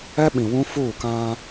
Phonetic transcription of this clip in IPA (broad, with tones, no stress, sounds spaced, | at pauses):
ɛ˦ ɓ ĩ˨ w ũ˦ f uː˦˨ k ã˦